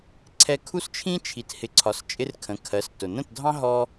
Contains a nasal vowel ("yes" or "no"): yes